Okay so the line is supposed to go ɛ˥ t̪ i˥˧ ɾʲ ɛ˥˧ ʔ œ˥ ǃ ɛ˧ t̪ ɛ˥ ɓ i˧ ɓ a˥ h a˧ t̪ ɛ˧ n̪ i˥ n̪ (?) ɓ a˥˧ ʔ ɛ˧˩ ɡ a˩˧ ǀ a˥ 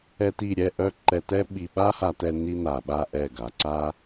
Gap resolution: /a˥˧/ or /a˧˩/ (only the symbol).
a˧˩